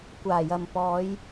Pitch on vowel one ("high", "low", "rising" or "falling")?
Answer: low